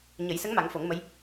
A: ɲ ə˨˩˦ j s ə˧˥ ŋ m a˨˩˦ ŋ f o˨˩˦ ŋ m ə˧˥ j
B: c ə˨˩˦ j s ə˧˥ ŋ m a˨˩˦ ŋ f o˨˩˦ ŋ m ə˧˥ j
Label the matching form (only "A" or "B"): A